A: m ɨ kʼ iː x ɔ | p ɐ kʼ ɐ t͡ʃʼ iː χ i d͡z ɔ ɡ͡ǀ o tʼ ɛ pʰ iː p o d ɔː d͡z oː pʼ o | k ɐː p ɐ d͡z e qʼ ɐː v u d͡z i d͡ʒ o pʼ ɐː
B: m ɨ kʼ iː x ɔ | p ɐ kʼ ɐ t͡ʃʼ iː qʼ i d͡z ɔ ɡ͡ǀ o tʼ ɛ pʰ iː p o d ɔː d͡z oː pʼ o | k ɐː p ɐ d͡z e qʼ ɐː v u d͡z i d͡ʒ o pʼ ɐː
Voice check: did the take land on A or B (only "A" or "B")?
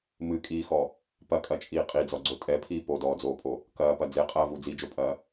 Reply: B